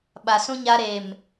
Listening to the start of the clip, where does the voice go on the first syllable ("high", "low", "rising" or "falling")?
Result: low